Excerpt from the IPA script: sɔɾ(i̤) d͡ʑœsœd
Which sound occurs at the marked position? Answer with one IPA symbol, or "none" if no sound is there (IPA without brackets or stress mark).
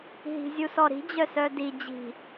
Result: i̤